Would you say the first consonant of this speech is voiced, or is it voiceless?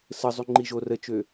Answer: voiceless